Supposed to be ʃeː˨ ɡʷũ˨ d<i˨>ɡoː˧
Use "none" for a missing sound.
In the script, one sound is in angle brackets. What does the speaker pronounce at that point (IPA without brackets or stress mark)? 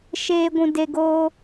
e˨